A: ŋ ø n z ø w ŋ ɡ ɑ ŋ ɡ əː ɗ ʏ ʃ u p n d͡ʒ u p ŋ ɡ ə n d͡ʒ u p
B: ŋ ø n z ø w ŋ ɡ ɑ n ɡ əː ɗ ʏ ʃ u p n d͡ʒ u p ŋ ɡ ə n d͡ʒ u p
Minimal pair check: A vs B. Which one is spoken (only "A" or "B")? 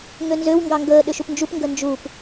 A